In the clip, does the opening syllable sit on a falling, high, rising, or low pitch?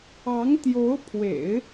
rising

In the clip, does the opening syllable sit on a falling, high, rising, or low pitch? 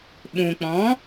low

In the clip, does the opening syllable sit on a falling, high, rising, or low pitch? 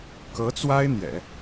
rising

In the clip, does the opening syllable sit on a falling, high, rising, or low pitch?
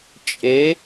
rising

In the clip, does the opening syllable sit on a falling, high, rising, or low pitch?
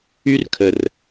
high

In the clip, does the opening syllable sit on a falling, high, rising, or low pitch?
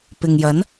low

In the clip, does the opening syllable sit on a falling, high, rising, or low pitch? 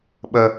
low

